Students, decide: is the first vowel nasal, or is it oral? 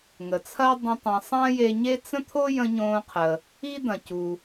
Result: oral